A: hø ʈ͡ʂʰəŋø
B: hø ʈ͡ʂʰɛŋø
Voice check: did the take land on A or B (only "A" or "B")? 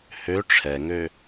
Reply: B